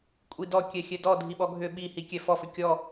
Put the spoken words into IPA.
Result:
kʷʼ i d ɔ kʲ ɛ xʲ ɛ d ɔ dʱ i ɓ ɔ ɡʱ ʏ ɓ i h i kʲ ɛ f ɔ f ʏ kʲ ɔ

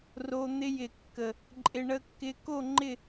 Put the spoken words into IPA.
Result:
r o˧ n̪ ɪ˧ j ɪ˨˩ kː ə˨˩ | ǃʼ ɪ˧ ɳ ə˧ kː ɪ˧ k o˥˧ ŋ͡ǃ ɪ˥˧

